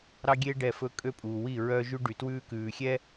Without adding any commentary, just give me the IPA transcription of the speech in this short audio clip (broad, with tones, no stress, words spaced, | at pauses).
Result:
ɾɑ˦ɡʲe˦ ɖɛ˦˨fɵ˦kʼø˦pʼuː˨ wi˦˨ɹœ˦ʒʉ˦ ɖy˨twʉː˦kʉː˨xʲɛ˦